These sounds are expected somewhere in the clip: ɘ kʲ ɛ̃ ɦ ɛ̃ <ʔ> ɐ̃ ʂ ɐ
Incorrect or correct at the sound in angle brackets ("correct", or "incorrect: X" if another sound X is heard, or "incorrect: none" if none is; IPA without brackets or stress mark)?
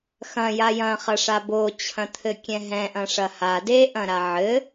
correct